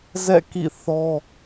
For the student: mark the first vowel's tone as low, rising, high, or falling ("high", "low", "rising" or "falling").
falling